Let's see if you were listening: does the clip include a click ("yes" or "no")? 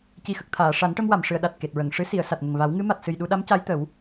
no